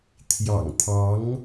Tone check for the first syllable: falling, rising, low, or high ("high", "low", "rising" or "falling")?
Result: low